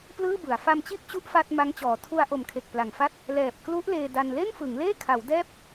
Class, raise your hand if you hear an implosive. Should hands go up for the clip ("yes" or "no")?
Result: no